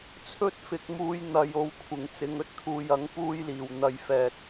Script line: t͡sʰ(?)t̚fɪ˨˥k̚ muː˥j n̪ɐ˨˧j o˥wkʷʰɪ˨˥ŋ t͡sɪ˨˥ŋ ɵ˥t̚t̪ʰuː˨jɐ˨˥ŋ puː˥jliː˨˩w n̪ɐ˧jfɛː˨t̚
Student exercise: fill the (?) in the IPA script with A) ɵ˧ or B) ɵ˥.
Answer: B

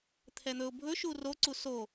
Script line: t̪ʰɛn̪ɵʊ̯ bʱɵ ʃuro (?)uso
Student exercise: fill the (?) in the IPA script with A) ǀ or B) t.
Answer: A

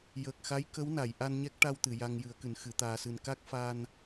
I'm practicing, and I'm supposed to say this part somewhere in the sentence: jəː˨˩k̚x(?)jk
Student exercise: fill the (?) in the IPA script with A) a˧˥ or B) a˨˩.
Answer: A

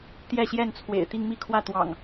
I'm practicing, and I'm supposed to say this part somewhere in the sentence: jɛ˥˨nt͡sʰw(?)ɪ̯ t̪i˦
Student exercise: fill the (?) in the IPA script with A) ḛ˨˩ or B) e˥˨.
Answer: A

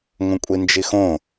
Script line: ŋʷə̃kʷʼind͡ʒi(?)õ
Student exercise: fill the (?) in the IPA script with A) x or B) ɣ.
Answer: A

